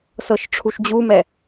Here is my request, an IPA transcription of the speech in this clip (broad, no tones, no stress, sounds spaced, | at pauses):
s ɤ ʃ ʈ͡ʂʰ u ʃ d͡ʑ u m ɛ